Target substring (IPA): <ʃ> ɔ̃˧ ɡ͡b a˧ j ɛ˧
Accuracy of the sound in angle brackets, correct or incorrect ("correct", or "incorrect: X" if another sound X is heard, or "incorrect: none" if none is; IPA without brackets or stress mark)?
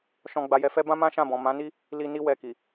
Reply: correct